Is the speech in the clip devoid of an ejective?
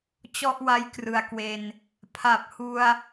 yes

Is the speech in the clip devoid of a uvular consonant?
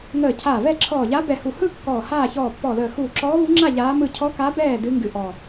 yes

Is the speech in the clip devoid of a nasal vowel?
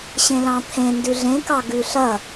no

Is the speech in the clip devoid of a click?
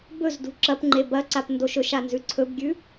no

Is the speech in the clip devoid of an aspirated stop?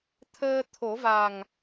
no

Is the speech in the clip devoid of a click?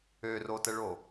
yes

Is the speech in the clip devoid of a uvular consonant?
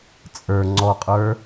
no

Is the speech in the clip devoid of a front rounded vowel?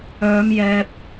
no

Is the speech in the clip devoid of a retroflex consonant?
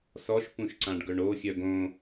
no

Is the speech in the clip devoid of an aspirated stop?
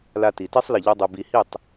yes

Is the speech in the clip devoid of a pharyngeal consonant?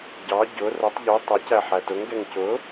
no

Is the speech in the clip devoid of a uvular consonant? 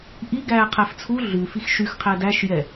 no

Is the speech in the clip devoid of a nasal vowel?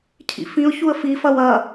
no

